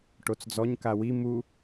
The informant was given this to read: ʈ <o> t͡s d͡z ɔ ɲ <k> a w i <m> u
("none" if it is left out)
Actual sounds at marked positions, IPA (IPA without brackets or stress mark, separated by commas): o, k, m